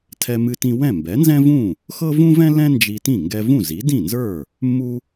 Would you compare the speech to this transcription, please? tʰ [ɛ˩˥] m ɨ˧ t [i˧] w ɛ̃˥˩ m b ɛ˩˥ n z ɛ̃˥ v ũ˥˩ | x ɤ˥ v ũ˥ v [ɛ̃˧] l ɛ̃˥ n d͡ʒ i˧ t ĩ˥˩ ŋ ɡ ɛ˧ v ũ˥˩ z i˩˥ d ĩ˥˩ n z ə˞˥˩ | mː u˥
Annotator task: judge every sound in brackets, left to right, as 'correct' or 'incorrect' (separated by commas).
incorrect, incorrect, incorrect